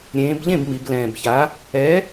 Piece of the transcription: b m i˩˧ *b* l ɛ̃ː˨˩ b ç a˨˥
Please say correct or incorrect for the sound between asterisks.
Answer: correct